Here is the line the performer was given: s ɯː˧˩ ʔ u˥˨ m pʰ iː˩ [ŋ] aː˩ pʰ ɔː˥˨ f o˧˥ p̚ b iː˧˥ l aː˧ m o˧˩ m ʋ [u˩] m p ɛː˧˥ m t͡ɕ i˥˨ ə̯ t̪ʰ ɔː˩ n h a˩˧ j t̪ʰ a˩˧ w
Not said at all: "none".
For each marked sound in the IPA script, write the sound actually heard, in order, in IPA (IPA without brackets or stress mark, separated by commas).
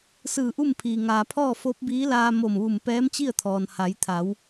ŋ, u˧˩